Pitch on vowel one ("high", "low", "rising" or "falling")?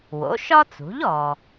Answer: rising